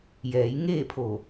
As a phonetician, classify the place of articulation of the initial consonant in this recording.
palatal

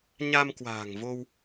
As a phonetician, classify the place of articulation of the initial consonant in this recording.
palatal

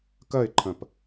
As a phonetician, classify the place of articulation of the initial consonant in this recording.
velar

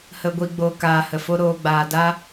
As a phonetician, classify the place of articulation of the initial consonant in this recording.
glottal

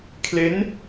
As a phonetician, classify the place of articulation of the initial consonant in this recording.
velar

